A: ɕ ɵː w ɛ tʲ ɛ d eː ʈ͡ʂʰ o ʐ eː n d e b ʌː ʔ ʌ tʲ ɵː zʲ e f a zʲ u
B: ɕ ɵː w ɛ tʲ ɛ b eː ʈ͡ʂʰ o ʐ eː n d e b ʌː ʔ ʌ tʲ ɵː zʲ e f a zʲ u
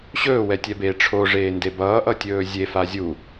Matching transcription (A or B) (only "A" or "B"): B